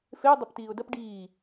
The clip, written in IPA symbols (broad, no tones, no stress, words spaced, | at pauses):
feʊ̯ dˤɐptiːʊ̯dɐp ɖiː